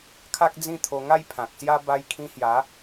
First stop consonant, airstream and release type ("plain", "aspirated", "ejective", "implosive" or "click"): aspirated